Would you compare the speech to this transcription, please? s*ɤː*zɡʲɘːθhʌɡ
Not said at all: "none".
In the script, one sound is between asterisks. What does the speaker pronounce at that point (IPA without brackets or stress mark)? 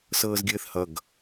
ɤː